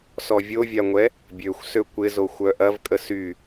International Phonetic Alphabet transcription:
s ɔ vʲ o vʲ a ŋʷ ɛ | bʲ ø xʷ s ø kʷ ɪ z o xʷ œ ʔ ɐ v kʼ ə s y

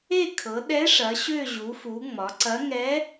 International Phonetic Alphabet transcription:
e˦˨ kʰ ɤ˩˧ ɗ ɛ˧˥ ʂ ɐ˩˧ ɕ ø˦˨ ʑ u˩˧ f u˩˧ ŋ͡m ɒ˩˧ ǀ ɐ˧˥ ŋ ɛ˧˥

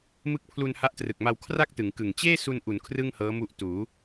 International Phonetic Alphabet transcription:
m ɯ˦˥ k̚ pʰ l u˧ n h a˦˥ ʔ t r ɯ˨˩ k̚ m a˧ w kʰ r a˥˩ k̚ t ɯ˩˦ ŋ k ɯ˨˩ ŋ t͡ɕ eː˥˩ s u˧ n ʔ u˩˦ n kʰ r ɯ˥˩ ŋ h ɤː˦˥ m u˦˥ ʔ t uː˩˦

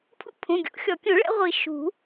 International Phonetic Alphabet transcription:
pʰ ṵ˦ pʰ ũ˩˧˩ ɡʲ o̰˨˩˦ xʲ ɔ˨˩˦ kʲ ũ˨˩˦ ɭ ɛ̰˦ ʁʷ i˨˩˦ ʃ ṳ˨˩˦

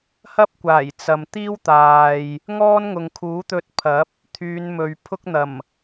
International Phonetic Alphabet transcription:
h ɐ˥ p̚ kʷ aː˨˩ j t͡s ɐ˨ m t̪ iː˥ w t̪ aː˨ j | ŋ ɔː˥ n ŋ ʊ˨ ŋ kʰ uː˨˥ t̪ ɵ˧ t̚ pʰ ɐ˨˥ p̚ | t̪ʰ yː˨˧ n m ɵ˨ ɥ pʰ ʊ˥ k̚ n̪ ɐ˨˩ m

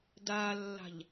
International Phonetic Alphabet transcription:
d a lː a̤ ʎ

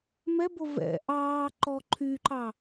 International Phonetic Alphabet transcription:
m ɛ b o v ɛ̰ ʔ ɑː ǃ ɔ ǃʰ y ǃ ɑ

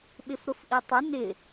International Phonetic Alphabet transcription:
ɓ ɪ f ɾ ʊ f ʔ i tˤ ə n ɪ

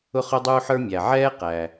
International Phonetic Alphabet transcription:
ʊ˥ χ ʊ˥ dˤ uː˥ ħ ə˞˥ mʲ æ˩ ʕ ɛː˥ q æ˩

